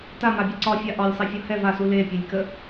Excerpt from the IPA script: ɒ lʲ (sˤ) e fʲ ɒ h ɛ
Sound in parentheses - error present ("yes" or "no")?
no